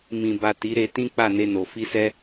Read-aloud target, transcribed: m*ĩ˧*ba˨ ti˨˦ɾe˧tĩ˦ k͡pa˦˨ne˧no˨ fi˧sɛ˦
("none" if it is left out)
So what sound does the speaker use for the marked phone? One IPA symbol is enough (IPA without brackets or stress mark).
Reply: ĩ˨